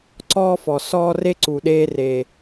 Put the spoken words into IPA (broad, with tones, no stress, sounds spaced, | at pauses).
ǀ ɔː˦ f ɔ˨ s ɔː˦ r e˦ ǀ u˨ ɗ eː˦ r e˦